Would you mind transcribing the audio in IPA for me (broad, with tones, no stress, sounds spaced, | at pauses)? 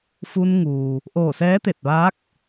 f u˧ n ŋ uː˩ | ʔ oː˧˩ s ɛː˧˥ t̪ e˧˩ t̚ ʋ aː˧˥ k̚